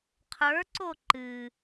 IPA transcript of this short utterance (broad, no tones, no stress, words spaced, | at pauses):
qʰə˞ǀo ǃɨ